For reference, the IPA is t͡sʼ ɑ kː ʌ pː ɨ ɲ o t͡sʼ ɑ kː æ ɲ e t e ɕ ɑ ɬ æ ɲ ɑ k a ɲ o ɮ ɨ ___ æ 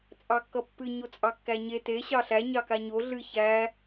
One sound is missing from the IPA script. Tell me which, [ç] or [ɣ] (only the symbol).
ç